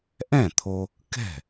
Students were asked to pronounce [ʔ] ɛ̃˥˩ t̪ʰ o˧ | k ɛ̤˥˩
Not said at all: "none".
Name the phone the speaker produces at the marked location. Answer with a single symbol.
ʔ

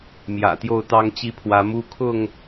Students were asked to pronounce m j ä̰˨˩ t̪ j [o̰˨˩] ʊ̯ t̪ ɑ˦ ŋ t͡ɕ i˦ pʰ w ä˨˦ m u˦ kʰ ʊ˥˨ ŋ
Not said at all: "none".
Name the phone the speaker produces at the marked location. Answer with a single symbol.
o˥˨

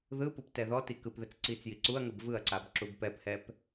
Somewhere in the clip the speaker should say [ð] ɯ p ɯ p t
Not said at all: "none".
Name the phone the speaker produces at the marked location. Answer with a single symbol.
ð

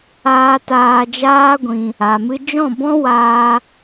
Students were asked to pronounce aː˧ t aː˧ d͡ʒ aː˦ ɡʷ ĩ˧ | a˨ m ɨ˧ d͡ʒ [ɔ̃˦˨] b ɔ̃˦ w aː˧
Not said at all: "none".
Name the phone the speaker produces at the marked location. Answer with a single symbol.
ɔ̃˦˨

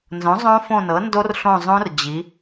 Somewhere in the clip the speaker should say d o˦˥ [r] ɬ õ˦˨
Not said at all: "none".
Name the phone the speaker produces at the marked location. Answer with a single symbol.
r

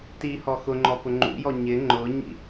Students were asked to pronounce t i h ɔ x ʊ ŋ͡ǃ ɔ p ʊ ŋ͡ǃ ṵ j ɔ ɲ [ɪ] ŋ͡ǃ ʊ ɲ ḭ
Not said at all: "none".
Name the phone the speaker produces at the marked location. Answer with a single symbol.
ɪ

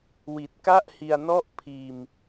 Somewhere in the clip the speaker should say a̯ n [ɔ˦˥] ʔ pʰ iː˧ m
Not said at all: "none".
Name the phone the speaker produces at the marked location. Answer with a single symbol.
ɔ˥˩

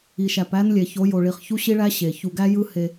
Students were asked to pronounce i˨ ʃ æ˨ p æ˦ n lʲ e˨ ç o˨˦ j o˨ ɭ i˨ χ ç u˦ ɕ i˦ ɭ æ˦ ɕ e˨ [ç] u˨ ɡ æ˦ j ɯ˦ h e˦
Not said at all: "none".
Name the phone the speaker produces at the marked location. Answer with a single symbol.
ç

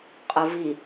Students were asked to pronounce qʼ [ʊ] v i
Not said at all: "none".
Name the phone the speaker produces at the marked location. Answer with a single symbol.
ʊ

